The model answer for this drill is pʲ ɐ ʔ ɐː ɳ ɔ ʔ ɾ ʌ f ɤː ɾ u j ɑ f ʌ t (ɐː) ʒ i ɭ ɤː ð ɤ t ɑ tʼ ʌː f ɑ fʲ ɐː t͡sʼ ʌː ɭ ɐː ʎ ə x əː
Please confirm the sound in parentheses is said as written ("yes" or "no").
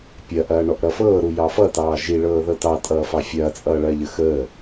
no